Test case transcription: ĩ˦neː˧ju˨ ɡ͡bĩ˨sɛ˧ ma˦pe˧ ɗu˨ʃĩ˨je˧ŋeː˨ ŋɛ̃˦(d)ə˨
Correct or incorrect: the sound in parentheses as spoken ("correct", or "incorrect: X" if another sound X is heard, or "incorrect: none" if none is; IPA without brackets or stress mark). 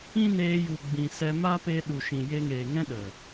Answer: incorrect: ɗ